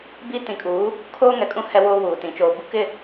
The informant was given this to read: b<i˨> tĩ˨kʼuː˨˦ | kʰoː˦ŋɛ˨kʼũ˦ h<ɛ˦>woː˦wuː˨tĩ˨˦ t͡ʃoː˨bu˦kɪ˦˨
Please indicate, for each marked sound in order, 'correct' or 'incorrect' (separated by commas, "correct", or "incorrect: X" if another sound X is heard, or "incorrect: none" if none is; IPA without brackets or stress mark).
incorrect: i˦, correct